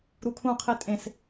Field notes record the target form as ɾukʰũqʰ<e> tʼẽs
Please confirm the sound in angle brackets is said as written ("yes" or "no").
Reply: yes